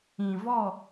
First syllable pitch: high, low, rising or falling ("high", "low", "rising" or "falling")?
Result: low